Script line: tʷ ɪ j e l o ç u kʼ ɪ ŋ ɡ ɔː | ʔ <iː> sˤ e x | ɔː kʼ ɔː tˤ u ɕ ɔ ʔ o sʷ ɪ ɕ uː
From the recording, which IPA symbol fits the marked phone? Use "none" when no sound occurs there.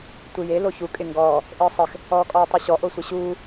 ɪː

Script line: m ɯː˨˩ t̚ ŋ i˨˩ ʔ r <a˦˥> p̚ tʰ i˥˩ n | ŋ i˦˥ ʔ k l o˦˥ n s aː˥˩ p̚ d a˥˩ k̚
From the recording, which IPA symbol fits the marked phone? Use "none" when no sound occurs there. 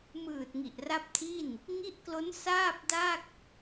a˦˥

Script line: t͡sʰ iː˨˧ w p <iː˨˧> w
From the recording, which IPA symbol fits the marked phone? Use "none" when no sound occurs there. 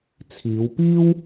iː˥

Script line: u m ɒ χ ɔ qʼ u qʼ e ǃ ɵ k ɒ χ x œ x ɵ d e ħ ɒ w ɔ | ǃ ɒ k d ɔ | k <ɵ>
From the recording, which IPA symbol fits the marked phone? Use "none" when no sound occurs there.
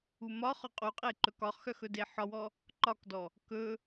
ɵ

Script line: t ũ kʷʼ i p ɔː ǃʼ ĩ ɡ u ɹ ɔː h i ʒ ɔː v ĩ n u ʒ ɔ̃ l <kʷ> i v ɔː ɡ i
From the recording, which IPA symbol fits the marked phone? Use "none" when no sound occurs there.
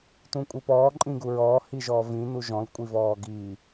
kʷʼ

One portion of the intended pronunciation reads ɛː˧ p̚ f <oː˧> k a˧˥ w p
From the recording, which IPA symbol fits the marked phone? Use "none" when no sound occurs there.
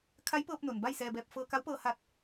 ɤː˧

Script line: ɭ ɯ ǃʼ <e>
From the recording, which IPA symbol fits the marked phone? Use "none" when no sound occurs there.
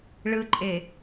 e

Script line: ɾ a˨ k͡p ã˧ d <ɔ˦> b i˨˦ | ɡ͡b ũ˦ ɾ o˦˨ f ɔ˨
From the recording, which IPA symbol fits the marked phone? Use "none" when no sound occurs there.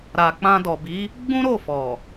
ɔ˨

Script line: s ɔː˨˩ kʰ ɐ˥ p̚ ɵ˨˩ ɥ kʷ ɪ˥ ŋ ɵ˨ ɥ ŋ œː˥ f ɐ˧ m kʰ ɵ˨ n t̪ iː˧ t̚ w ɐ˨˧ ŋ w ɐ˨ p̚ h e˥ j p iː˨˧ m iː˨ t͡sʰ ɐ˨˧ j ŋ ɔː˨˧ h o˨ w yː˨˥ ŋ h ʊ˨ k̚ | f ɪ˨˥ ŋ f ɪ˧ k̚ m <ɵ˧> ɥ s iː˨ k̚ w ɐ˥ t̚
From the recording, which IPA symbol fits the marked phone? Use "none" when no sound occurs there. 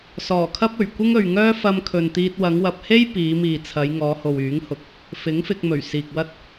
ɵ˨˩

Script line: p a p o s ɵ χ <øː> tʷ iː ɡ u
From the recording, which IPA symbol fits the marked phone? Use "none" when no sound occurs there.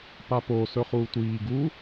uː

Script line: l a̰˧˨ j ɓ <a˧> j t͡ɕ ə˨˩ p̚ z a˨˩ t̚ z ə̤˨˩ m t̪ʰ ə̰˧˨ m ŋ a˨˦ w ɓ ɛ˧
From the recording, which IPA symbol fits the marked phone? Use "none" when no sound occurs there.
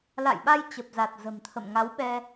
a˧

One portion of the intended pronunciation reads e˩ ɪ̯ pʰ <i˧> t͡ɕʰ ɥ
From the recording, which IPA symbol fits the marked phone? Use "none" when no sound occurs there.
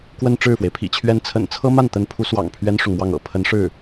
ḭ˨˩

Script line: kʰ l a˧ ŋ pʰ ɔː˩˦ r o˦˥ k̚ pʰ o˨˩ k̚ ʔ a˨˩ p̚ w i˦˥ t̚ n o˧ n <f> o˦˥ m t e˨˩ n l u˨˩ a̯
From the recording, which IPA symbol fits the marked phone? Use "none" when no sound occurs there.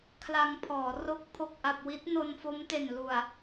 f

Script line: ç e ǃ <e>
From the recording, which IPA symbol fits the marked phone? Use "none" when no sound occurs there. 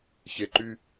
y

